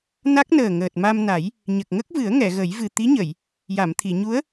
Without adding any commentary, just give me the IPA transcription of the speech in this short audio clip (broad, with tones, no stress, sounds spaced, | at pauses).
n a˦˥ k̚ n əː˨˩ ŋ əː˨˩ t̚ m a˧ m n a˨˩˦ j | ɲ ə˨˩ k̚ ŋ ə˦˥ k̚ v ɨ˨˩˦ ə̯ ŋ ɛ˨˩˨ ɣ ə˨˩˦ j v ɨ˨˩ t̪ i˧˥ ɲ ə˨˩˨ j | j a˨˩˨ m t̪ʰ i˨˩˨ ɲ u˧˥ ə̯